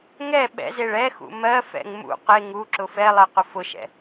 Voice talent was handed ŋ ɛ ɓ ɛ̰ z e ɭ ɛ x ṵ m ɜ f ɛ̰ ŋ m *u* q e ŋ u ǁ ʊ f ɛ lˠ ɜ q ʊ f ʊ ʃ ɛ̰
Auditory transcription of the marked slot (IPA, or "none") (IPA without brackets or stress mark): ṵ